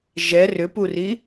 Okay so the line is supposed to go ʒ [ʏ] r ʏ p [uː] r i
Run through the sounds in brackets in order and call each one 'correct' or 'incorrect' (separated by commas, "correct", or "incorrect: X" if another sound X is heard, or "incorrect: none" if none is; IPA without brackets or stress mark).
incorrect: ɛ, incorrect: u